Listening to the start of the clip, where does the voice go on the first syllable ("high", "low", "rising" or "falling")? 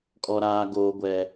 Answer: low